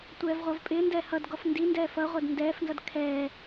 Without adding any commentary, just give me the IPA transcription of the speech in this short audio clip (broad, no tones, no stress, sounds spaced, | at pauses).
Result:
tʷ ɛː v ʁʷ æ v pʼ ɪː n d ɛ h ʌ d ɡ ɔ f n d i n d ɛː f ʌ ʁʷ ɜ d n d ɛː f n z ʌ d kʰ ɛː